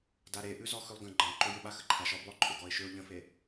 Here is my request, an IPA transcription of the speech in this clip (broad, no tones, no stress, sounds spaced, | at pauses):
d a ɾ e ʔ ʉ z ɔ x ʉ lˠ ɡ ə̃ ɡ͡ǃ ə̃ ʊ̯ ǃ ʏ j ʏ ɓ a x ə ǃʰ a ʃ ɔ b lˠ ʊ ǃʼ ʏ ɡ ɔ ɪ̯ ʃ ʏ ʊ̯ ʎ ə̃ f e